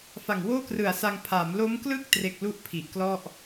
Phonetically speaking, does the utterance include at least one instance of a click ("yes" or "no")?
no